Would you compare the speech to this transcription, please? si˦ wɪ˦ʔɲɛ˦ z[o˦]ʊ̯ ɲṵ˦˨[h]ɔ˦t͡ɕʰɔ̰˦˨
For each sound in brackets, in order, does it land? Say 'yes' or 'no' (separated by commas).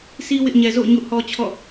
no, yes